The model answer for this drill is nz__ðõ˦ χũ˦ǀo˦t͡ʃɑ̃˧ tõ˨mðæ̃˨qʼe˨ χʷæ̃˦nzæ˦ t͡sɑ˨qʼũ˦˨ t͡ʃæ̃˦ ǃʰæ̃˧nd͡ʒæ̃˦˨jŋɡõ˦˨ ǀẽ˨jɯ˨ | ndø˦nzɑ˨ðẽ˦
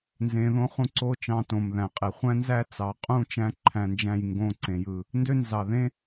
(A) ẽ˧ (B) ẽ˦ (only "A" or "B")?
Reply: A